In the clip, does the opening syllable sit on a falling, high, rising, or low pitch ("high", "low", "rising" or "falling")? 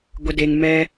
low